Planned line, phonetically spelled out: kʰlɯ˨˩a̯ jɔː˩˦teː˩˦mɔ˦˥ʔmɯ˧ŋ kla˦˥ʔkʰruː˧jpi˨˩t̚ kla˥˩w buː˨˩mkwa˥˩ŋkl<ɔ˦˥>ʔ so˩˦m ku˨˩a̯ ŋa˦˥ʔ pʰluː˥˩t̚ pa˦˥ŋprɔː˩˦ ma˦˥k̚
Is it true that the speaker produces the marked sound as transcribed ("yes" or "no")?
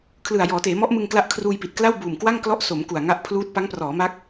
yes